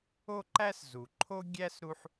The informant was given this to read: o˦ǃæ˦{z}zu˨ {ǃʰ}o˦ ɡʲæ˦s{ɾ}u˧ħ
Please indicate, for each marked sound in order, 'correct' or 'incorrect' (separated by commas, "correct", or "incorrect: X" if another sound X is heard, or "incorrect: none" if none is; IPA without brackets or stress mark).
incorrect: s, correct, correct